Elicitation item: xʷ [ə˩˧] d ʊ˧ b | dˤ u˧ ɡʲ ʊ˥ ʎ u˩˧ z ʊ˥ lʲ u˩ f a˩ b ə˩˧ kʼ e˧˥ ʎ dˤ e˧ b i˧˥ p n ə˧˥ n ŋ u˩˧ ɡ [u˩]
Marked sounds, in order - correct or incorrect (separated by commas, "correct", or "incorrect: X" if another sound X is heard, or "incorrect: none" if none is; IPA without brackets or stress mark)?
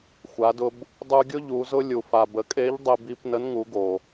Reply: incorrect: a˩˧, incorrect: o˩